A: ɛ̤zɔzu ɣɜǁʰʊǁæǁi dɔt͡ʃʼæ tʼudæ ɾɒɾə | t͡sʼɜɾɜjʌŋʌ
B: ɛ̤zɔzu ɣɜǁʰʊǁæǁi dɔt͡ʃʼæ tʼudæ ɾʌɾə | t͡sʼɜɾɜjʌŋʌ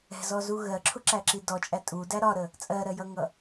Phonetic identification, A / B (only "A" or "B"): A